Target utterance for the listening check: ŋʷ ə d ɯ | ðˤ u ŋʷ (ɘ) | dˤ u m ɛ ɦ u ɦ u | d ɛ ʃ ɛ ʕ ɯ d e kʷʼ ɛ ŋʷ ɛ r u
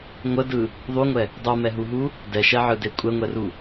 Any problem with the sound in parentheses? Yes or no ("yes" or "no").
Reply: yes